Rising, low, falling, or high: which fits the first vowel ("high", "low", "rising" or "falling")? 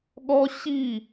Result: high